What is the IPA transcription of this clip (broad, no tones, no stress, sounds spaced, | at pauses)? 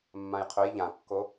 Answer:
mː ã j qʰ ø j ʎ ã kː o